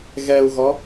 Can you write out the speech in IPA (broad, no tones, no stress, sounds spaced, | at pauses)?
ɣ ɛ u̯ ɣ ɔ